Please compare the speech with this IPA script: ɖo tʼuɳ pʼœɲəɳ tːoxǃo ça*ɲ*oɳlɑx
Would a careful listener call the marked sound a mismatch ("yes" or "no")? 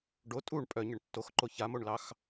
yes